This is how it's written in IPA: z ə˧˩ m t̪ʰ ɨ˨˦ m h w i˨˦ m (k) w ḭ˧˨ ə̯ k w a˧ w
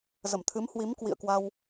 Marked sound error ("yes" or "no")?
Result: no